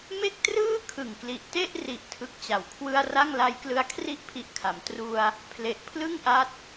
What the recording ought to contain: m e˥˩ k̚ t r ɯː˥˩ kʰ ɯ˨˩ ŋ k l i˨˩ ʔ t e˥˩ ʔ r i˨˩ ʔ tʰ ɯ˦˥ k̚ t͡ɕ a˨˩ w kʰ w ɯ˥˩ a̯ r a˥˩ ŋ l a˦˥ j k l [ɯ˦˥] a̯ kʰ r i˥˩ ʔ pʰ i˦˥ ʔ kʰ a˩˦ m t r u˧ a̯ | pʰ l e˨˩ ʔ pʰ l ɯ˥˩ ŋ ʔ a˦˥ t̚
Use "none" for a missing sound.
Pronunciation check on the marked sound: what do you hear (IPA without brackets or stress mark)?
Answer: ɯ˦˥